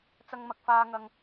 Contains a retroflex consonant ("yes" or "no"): no